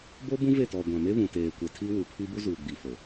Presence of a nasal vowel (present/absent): present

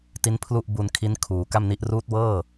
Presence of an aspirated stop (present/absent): present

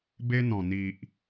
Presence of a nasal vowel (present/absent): present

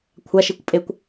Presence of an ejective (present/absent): present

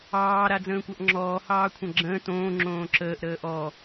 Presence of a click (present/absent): present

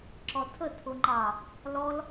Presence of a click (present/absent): present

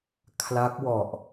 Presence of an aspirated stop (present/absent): present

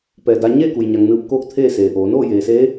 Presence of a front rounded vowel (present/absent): absent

